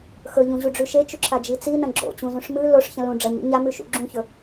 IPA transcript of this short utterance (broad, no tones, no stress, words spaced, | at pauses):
xɵʎũʑuɖ͡ʐʉ ʃet͡ʃuǁʰad͡ʒi t͡sinɐ̃ ɡ͡ǁo̰t͡ɕũzũʂ mɨ loʂçɐ̃ lũ ɖ͡ʐɐɲo̰ ɲamʉʃṵ ɡ͡ǁũçɵ